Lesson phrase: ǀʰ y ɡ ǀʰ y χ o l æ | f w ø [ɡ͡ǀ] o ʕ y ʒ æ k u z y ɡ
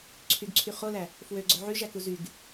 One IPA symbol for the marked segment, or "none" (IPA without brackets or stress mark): ɡ͡ǀ